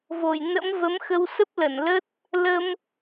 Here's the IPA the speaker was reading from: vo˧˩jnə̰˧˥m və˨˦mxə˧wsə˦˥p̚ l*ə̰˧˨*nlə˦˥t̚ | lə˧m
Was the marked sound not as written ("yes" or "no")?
yes